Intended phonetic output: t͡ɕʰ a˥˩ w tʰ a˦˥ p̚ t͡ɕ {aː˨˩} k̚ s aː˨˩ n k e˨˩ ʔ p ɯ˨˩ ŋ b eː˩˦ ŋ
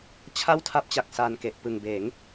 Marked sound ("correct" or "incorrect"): incorrect